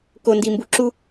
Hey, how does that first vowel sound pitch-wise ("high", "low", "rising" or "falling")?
low